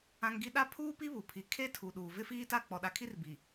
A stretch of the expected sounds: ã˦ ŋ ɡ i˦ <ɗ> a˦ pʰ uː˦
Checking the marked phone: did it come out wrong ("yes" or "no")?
no